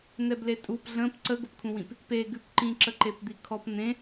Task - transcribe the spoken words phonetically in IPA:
n̪ɛbletʼup ɮə̃p ǀəɡʊpkʰũwĩp | peɡʉpǃĩǁə ǃepd̪ikʰɔp n̪ẽ

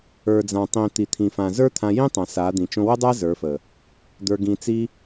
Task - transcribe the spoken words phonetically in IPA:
ə˞˨d͡zã˨tˤĩ˨ t̪i˨t̪ʰĩ˨ fã˨ zə˞˦t̪ʰã˧jĩ˦tˤã˨ sa˨˦d̪ĩ˨ t͡ʃõ˧wə˦dˤa˦ zə˞˨˦fə˨ | d̪ə˞˧ɡĩ˧t͡si˦

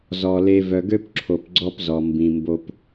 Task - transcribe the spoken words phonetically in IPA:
zɔ˨ le˨ vœ˨ɡø˦pǁʰo˨p ɡ͡ǀɔ˦pzɔ˨ mbĩ˨ mbo˦p

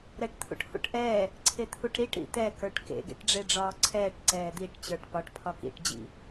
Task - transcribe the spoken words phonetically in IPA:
ɾɛʈt̪ʰṵʈhṵʈʔɛː | ǀʰet̪ʰuʈɾiʈ ɾḭt̪ɛ kə˞ʈkḛ ɡḛʈɖ͡ʐeɖ͡ʐɒːǀʰɛːʈ ǀɛːd̪iʈ t͡ɕə˞ʈpɒʈ pʰɒkḭʈ d͡ʑḭ

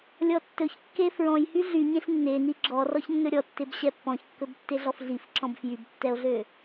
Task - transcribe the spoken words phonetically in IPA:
lʲɔtːɵçkːe fɹɔ̃j hyɮy ɲẽɬnːeni ɡ͡ǁɔ rɔçnːɵɾʲɔ tːebɕɛpːɔ̃çkːɵb tːeɮɔfɮifǁɔ̃b fjybtːɛo̯ɮø

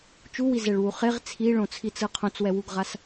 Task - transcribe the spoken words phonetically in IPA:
t͡ʃuwizɛɭwu χeʁ t͡sʰiɭõt͡sʰit͡sɯ qʰõt͡swɛwuɡʁas

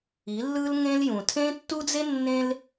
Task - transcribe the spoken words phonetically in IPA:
i˨˦ lːɯ˦l ŋẽ˦ljũ˨ tʰẽ˦tːu˦d͡ze˦ nːẽ˦l

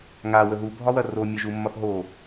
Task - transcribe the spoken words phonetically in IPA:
ŋa wəɦu bʱɒwɐro mʲɐʒumːɒθɦo

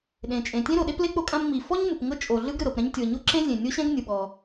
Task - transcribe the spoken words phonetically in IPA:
ɗẽ˩t͡ʃʼẽ˩tʲẽ˥ɾo˩ ɗe˥ple˥ k͡po˥kʼã˥m ŋ͡mi˩fɔ˥ɲ mɯ˩pŋɤ˥ t͡ʃʼo˩ɮɯ˥ɡ ɾɯ˩ɾɤ˩pɾɛ̃˥ɲ tʲɤ˩ɲo˥ ǁẽ˥zʲẽ˩nʲo˥ɕɛ̃˥ɡ nʲɯ˩ɓɔ˩

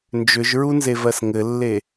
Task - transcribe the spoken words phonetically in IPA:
nd͡ʒʏʒɹunzevɜs ŋɘlːe

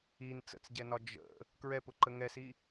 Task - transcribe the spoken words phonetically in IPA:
in t͡sə̰t͡sɟɛnɒ d͡ʒə̰ | kɹɛpʊǃə ŋɛsi

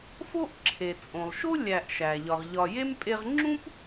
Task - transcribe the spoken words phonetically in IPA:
fo˥ʔǁʰe˩t͡sʼõ˩lˠ ʃo˥lʲæ˨ʔʃæ˩ ʎɒ˩ʁʎɒ˨je˥mpʼe˦ʁ ŋ͡ǁũ˥p

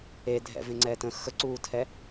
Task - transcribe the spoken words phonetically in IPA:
e dʱɛ̰vẽŋ͡ǀɛtə̃ xəǀuːtʰɛ

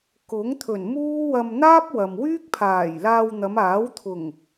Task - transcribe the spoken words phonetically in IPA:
kʊ˨˥ŋt̪ʰɵ˨˩nmuː˥wɐ˧m n̪aː˥p̚ wɐ˨m wyː˥k̚pʰaː˨˩jlaː˧w n̪ɐ˨˧maː˨˥wt̪ʰʊ˨˩ŋ

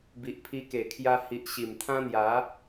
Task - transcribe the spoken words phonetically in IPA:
bi˨ʔpʰi˧ke˨˩kʰja˧ hi˨ʔ ɕi˨˩mt̪ʰã˦n̪ja˨˦

